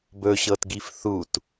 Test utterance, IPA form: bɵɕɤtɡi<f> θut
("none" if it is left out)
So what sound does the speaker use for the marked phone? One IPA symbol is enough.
f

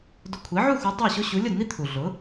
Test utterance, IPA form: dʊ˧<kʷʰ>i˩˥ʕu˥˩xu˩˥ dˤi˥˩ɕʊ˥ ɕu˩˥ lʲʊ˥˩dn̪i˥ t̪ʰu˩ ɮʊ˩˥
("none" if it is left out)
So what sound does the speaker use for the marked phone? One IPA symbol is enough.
kʷʰ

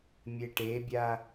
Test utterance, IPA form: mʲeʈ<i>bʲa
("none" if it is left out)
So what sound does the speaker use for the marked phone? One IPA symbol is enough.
e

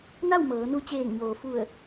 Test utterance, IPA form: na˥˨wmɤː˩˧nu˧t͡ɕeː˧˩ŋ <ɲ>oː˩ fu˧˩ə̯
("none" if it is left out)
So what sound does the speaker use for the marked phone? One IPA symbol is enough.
ɲ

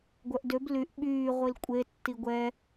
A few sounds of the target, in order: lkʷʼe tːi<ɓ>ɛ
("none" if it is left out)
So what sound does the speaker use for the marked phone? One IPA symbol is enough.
ɡʷ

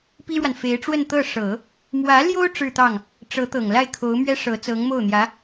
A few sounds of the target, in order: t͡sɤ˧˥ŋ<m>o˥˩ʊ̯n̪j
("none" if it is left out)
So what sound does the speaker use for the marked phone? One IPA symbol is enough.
m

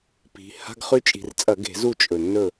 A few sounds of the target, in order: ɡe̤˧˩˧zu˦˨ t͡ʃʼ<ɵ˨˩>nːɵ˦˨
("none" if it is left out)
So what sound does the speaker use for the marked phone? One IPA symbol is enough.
ɵ˨˩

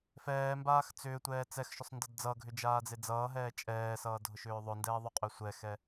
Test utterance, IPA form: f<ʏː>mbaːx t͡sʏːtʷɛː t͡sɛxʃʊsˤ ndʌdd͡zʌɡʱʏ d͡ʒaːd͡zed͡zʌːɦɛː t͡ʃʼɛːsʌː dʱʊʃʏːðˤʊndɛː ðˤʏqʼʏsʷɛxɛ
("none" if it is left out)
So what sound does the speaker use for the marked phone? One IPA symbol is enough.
ɛː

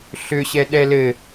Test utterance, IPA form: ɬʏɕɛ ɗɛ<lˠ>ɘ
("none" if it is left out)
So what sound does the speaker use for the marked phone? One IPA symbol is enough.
l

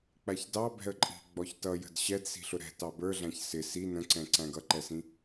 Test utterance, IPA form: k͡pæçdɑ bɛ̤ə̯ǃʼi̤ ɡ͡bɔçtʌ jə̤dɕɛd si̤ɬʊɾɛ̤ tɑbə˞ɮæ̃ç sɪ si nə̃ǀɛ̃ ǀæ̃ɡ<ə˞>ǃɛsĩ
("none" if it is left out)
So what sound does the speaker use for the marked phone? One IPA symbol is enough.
ʌ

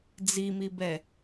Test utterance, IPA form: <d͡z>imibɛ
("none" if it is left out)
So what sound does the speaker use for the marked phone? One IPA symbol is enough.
d͡z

